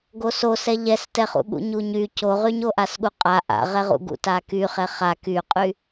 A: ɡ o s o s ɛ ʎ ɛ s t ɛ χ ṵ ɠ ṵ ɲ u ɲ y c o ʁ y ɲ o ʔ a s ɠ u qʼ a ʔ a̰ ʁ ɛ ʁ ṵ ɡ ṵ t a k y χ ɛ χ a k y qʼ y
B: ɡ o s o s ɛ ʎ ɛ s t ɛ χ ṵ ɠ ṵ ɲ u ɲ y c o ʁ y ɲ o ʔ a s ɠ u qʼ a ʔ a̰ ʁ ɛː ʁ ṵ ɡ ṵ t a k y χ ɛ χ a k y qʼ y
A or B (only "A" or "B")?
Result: A